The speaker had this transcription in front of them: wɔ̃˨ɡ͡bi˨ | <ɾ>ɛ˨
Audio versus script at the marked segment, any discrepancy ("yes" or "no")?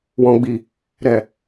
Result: no